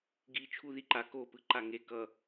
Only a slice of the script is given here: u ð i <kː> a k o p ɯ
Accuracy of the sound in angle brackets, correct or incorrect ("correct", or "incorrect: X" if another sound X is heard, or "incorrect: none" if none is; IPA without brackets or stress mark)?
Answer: incorrect: ǃ